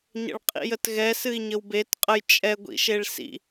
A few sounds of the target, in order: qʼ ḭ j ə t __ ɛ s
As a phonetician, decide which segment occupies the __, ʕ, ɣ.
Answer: ɣ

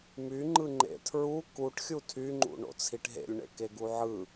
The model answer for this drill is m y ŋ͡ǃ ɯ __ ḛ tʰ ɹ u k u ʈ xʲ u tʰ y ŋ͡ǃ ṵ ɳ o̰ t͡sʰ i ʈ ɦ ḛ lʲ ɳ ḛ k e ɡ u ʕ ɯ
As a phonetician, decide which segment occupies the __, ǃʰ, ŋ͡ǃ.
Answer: ŋ͡ǃ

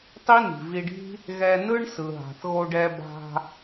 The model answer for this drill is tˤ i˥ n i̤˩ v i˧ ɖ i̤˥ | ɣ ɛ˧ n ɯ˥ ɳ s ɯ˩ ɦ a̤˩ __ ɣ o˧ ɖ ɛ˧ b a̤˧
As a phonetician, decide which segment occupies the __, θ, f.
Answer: θ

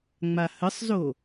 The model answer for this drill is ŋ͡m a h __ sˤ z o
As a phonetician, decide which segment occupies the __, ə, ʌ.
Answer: ə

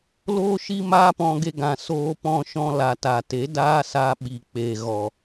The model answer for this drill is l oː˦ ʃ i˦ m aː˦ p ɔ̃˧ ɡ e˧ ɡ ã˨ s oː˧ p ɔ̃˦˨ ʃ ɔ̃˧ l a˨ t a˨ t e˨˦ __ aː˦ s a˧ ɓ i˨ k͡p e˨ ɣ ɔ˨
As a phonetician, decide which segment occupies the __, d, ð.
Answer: d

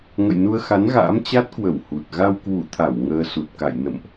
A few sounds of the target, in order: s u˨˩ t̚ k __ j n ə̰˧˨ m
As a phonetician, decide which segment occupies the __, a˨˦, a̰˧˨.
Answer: a̰˧˨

